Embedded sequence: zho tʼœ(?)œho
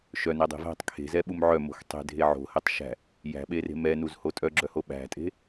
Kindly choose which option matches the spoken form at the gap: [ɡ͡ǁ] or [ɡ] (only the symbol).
ɡ͡ǁ